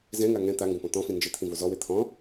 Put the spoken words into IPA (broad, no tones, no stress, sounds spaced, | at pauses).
z ɛ̃ ŋ a ŋ ɛ̃ t̪ a ŋ ɡ õ p ɔ̃ t̪ ɔ̃ f ĩ n d͡ʒ ɪ t̪ʰ ĩ v o z ɔ w e t̪ʰ ɔ̃